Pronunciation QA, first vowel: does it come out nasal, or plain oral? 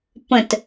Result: nasal